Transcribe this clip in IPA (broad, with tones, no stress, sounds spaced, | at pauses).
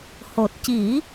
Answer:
h o˨˩ t̚ c i˨˩˦